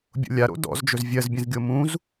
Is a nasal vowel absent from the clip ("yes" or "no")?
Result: no